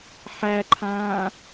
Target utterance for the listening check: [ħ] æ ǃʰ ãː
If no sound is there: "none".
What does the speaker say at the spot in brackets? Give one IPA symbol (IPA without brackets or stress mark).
ħ